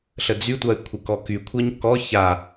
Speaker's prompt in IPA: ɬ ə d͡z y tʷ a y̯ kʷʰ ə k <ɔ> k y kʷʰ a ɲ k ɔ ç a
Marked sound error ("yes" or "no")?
no